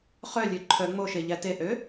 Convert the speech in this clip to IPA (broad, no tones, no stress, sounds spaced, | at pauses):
χ œ lʲ ø ǃʰ œ ŋ͡m o ʃ e ʎ æ t e ʔ ø